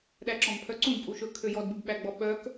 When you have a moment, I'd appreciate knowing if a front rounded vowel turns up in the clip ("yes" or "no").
yes